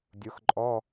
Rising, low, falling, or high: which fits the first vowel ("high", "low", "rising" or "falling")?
rising